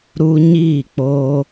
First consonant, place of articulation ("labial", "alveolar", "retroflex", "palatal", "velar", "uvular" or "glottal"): alveolar